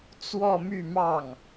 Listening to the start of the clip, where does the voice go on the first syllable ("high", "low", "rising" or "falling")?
falling